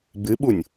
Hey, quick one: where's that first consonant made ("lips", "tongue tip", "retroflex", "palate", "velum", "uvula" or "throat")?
lips